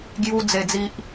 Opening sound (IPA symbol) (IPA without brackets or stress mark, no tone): ɡ